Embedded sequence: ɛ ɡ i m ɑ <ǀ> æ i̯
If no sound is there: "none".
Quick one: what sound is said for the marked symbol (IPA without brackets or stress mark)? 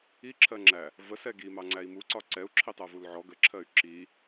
ŋ͡ǀ